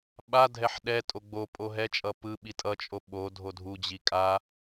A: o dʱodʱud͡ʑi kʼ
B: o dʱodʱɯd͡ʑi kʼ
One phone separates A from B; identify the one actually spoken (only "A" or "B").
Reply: A